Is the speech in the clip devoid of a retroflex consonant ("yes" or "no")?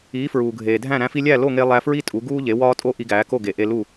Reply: yes